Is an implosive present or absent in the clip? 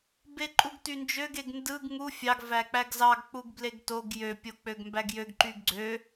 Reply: absent